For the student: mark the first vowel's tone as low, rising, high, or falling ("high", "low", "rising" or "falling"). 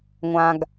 low